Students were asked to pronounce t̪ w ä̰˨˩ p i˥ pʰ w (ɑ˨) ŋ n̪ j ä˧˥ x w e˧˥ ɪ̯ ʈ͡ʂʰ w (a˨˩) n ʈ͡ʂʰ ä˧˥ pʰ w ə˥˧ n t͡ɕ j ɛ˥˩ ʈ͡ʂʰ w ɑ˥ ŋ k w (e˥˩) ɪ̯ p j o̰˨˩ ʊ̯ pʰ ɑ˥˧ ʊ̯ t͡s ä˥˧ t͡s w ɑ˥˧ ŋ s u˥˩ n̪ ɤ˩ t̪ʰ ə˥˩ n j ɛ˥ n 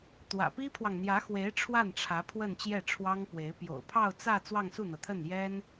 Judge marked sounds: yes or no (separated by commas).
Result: yes, no, no